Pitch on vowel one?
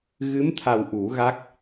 rising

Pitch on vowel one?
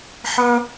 high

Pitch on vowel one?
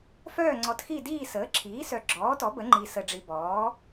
falling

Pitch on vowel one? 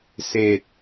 low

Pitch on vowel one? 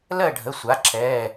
falling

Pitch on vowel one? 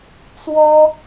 high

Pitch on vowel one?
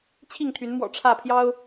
falling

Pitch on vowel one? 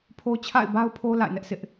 high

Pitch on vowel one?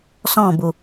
falling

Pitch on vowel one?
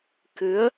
rising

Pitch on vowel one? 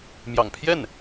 low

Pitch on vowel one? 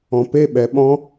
low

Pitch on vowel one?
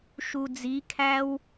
low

